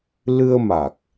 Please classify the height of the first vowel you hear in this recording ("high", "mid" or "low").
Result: high